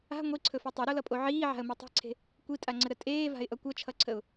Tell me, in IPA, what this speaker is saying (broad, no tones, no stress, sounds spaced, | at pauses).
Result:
a̤ ŋʷ i ǀʰ ɵ f i tˤ e ɾ o l ʌ pʼ o ʕ iː ʕ a̤ ə̯ m e tˤ e̤ ǀʰ e̤ | kʷ i tʼ a ŋ͡ǀ ə ɾ ə tʼ eː v a̤ ɪ̯ ʔ ʌ kʷ ʌ t͡ʃʰ ʌ ǀʰ ə ʊ̯